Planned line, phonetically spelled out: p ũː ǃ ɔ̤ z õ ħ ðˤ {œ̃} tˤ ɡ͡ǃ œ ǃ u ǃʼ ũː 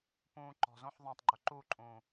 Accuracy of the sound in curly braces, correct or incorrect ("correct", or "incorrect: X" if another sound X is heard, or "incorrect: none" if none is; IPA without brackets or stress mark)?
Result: correct